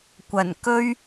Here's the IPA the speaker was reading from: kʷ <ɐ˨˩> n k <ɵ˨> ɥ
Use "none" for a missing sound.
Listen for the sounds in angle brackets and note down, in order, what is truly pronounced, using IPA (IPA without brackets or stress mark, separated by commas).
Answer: ɐ˨˩, ɵ˥